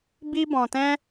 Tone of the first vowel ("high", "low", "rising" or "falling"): high